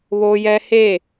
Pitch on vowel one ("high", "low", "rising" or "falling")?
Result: high